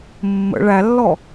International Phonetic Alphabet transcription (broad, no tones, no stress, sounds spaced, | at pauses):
mː ə̰ ɭ æ lː ɔ